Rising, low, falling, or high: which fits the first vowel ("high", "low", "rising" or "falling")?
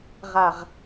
low